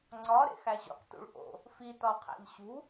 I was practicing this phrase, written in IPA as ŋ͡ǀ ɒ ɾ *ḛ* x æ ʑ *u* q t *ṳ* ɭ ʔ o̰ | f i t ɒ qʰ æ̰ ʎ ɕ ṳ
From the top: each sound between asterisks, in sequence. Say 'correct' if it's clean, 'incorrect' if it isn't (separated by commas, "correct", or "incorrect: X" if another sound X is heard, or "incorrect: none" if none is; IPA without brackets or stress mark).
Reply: correct, incorrect: ṵ, incorrect: ṵ